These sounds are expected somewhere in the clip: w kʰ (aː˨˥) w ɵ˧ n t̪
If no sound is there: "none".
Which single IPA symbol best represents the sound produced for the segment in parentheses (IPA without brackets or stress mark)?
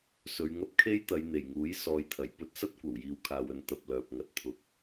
aː˨